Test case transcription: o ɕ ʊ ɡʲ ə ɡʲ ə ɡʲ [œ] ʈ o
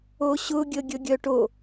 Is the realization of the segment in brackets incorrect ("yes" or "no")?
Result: no